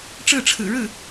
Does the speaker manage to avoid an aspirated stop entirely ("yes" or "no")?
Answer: no